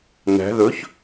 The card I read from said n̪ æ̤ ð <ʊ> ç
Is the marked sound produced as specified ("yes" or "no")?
no